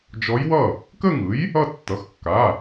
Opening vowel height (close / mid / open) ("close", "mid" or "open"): mid